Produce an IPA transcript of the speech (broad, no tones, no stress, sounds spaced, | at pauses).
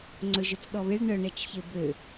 ŋ͡ǀ ɵ ʒ ɵ t͡s ɗ ɔ β e ɭ ɳ œ ɳ ɛ t͡ʃ ç e b ø